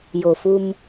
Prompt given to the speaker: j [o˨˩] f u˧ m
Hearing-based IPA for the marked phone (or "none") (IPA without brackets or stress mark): o˨˩